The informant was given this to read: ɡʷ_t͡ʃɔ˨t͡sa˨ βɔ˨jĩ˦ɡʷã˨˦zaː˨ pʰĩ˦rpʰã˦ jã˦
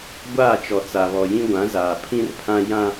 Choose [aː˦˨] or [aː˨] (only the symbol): aː˦˨